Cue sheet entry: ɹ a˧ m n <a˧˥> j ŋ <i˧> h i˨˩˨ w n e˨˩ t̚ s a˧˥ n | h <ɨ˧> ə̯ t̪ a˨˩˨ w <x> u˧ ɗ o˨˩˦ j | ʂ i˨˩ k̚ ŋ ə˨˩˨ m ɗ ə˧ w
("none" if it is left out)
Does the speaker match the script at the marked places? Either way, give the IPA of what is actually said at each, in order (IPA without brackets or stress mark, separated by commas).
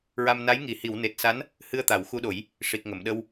a˧˥, i˨˩˨, ɨ˧, x